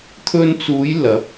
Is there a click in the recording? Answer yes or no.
no